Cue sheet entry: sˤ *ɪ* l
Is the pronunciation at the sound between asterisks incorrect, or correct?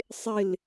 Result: correct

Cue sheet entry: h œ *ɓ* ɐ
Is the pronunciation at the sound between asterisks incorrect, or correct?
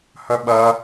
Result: correct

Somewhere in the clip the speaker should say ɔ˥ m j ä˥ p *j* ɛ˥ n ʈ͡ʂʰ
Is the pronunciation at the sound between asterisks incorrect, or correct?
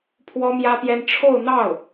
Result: correct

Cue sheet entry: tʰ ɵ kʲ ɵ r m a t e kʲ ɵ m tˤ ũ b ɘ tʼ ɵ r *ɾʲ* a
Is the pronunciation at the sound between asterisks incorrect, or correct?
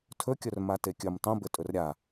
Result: correct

